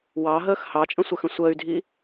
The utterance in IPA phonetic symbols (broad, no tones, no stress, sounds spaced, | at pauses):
w ɑ ɦ əː x h ɑ t͡ʃʼ ə̃ sʷ ə x ə̃ sʷ əː y̯ dʱ i